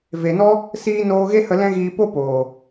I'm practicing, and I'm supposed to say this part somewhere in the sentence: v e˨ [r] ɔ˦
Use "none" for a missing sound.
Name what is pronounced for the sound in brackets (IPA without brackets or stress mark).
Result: n